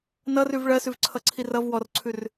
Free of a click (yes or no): no